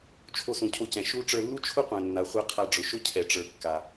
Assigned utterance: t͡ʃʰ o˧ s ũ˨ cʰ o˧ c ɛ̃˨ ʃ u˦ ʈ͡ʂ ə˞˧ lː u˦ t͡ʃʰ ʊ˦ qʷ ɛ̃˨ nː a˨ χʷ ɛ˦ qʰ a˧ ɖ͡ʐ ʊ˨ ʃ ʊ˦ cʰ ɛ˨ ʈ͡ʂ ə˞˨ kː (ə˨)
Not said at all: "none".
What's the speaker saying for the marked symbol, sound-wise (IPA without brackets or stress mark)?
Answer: a˨